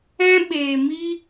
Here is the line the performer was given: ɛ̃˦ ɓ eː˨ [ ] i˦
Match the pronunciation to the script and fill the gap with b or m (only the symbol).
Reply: m